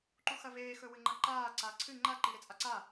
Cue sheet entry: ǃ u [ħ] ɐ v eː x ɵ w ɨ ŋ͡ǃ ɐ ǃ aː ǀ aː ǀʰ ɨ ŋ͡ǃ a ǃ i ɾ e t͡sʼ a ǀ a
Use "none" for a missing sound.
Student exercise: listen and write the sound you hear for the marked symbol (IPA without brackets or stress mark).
x